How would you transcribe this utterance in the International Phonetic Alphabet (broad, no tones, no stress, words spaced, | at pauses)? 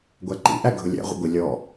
ɡʷæǃḭʔæ ɡʱʊlʲæ̰ʁʷə̰ ɡʷɪ lʲɔ